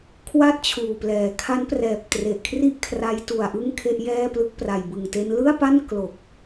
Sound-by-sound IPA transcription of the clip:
kʰ w a˥˩ t̚ t͡ɕʰ uː˨˩ p l ɛː˩˦ kʰ a˦˥ n p r ɛː˨˩ p̚ t r e˨˩ ʔ kʰ r i˥˩ ʔ kʰ r a˦˥ j t u˨˩ a̯ ʔ ɯ˥˩ ŋ kʰ e˥˩ ʔ j ɛː˥˩ p l ɯ˦˥ k̚ p r a˨˩ j b ɯ˨˩ ŋ t e˦˥ n l ɯ˥˩ a̯ p a˥˩ n k l o˨˩ k̚

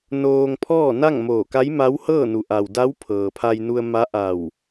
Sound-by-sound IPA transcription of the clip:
n oː˧ ŋ pʰ ɔː˥˨ n a˥˨ ŋ m oː˧˩ k a˧˥ j m a˧˥ w h ɤː˥˨ n u˩ ʔ a˩ w d a˧˥ w pʰ ɤː˩ pʰ a˧ j n u˧ ə̯ m a˧˥ ʔ a˧˩ w

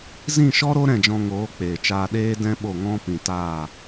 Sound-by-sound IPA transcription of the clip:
z ĩ˦˨ ʃ ɔ˦ ɾ o˦ ɾ ɛ̃˦˨ d͡ʒ ɔ̃˧ ŋ oː˨˦ k͡p eː˨ t͡ʃ aː˧ ɗ eː˦ d ɛ̃˦ ɓ o˦˨ ŋ ɔ̃˦ p ĩ˧ t aː˦˨

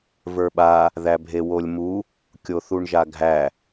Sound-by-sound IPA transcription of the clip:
v ə˞ ɓ a | ð æ bʱ e w o lʲ m u | kʲ o θ u ɳ ʒ a ɡʱ æ

